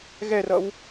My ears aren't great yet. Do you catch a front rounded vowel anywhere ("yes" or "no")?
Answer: no